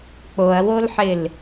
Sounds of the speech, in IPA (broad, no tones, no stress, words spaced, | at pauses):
k͡poɐ̯wolħɪl